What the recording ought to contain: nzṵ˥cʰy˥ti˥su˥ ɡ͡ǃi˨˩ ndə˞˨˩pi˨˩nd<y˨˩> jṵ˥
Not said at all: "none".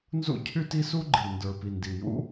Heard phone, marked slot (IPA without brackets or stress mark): i˨˩